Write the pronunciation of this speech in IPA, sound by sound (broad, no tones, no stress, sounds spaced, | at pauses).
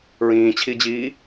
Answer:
ɹ ĩː t͡ɕʰ i d͡ʑ iː